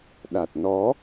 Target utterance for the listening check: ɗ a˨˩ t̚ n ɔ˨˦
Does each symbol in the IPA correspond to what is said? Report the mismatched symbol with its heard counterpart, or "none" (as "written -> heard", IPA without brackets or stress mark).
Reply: none